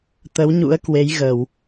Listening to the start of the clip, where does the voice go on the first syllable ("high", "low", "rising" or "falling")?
rising